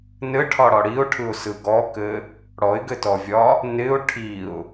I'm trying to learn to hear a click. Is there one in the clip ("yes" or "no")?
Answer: no